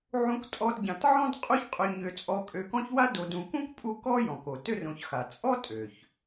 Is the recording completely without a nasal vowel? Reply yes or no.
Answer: no